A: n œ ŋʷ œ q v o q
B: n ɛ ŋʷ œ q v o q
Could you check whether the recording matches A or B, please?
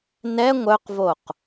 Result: B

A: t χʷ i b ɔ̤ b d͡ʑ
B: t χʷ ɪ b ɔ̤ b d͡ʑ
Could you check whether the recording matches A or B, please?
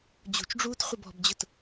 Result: B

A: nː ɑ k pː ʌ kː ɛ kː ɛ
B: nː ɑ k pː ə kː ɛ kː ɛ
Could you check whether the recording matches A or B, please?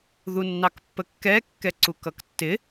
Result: B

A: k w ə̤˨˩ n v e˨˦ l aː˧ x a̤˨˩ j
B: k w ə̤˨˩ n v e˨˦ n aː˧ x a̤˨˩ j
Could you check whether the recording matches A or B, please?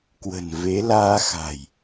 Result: A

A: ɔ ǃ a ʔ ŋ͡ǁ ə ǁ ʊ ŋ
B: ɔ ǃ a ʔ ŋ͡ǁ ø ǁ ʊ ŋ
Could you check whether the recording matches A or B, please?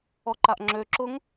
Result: B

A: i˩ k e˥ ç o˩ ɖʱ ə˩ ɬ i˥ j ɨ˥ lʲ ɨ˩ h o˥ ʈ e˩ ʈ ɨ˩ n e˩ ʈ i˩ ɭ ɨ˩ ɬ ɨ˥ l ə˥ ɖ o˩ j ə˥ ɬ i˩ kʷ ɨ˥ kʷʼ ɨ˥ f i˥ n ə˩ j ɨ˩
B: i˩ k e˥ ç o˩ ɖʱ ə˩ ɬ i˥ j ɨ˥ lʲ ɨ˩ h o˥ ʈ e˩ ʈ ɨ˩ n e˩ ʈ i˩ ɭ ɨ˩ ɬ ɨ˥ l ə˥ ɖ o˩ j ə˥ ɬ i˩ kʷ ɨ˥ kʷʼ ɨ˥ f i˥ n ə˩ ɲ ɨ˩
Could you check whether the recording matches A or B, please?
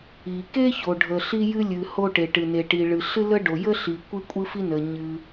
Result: B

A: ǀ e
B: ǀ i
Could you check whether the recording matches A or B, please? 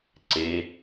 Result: A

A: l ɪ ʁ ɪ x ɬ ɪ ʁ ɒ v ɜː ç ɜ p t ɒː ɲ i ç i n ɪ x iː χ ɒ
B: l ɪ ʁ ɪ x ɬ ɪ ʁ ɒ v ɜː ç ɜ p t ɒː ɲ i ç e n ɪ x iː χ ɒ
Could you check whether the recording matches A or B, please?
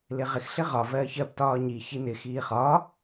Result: A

